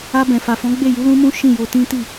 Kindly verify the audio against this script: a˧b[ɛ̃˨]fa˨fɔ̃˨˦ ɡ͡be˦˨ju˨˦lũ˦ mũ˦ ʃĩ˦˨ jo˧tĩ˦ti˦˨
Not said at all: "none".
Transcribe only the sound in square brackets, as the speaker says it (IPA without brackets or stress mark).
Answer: ɛ̃˨